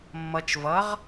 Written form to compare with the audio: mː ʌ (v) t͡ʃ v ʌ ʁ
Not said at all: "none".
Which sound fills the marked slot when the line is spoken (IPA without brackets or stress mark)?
none